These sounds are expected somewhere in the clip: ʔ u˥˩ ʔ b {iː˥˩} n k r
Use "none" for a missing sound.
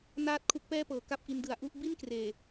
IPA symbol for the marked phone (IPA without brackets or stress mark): i˥˩